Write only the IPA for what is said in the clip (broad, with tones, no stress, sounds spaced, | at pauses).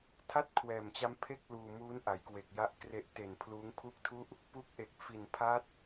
tʰ a˥˩ t̚ kʰ w ɛː˨˩ m t͡ɕ a˦˥ m pʰ e˥˩ k̚ l uː˧ m uː˦˥ n ʔ a˩˦ j k w e˨˩ k̚ j a˦˥ ʔ k r e˦˥ ʔ t e˨˩ n pʰ l uː˦˥ ŋ pʰ u˥˩ k̚ tʰ u˥˩ ʔ | p u˦˥ k̚ ʔ e˨˩ k̚ f i˨˩ n pʰ a˦˥ t̚